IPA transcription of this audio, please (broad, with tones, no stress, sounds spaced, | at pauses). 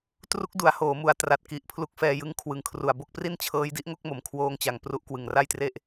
t r u˦˥ k̚ d u˩˦ a̯ h oː˩˦ m u˩˦ a̯ t r a˨˩ t̚ k i˨˩ ʔ pʰ l u˦˥ k̚ f ɛː˧ j ɯ˧ ŋ kʰ w ɯ˨˩ ŋ kʰ r u˨˩ a̯ b o˥˩ k̚ p r i˥˩ n t͡ɕʰ ɤː˦˥ j d i˦˥ ʔ ŋ o˥˩ k̚ m o˩˦ m kʰ w oː˧ ŋ t͡ɕ a˨˩ ŋ p r u˥˩ ʔ k w ɯ˨˩ ŋ r a˥˩ j t r e˥˩ ʔ